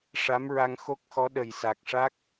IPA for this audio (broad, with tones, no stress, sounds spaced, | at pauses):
ʂ a˧˥ m ɹ a˧ ŋ x o˦˥ k̚ x ɔ˧˥ ɗ ə˨˩ j s a˨˩ k̚ ʂ a˦˥ k̚